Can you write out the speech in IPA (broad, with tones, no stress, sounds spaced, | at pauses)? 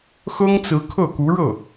x ɤ˥ ŋ t͡s ɹ̩˧˥ kʰ ɤ˥˩ k u˧˥ ɻ ɤ˥˩